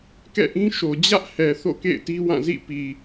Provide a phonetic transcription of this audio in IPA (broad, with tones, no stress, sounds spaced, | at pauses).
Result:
k ɛ̰˦˨ ʔ ĩ˦ ʃ o˨ d͡ʑ ä˦ ʔ h ɛ˨ θ o̰˦˨ k ḛ˦˨ ɪ̯ t i˦ w ã˦˨ z ḭ˦˨ p i˨